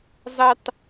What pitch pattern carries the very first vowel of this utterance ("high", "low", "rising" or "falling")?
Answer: high